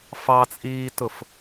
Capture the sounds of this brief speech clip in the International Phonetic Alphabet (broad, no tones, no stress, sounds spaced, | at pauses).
f ɑ t͡sʼ iː t ʊ f